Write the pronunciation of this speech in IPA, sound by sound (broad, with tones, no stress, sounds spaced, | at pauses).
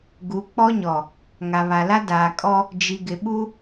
ɡ u˨˦ k͡p ɔ˦ ɲ ɔ˨ | ŋ a˨ β a˨ l a˦ d aː˨ kʼ ɔ˦ | d͡ʒ i˨ ɡ ɪ˨ ɓ u˦